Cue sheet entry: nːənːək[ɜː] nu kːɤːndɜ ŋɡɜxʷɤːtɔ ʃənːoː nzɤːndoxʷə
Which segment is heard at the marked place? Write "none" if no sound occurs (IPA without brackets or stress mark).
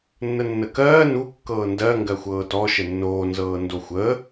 ɜː